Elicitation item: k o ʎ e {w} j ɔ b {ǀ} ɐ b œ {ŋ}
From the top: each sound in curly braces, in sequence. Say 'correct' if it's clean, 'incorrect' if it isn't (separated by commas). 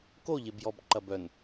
incorrect, incorrect, incorrect